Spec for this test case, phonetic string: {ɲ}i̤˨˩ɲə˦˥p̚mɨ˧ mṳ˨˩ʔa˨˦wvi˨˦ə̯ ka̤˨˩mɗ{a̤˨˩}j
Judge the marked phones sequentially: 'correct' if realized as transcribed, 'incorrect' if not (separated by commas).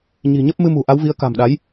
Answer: correct, incorrect